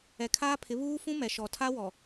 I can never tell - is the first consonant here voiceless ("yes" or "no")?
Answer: yes